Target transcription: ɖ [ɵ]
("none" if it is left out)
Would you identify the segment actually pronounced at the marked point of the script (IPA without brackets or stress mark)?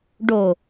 o